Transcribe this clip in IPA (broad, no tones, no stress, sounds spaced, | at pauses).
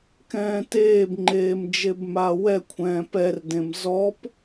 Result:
k ɛ̃ː t eː b ŋ͡ǃ eː m d͡ʒ e b m a w ɛ kʷʰ ɛ̃ː p ɛ r d ẽ m z ɔ p